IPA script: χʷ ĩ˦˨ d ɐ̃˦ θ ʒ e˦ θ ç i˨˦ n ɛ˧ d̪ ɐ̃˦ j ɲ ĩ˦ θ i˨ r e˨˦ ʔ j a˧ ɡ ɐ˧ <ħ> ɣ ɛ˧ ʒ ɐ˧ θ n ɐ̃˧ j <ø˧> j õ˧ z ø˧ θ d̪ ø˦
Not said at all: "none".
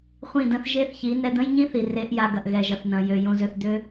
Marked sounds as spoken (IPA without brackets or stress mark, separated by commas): ʔ, ø˧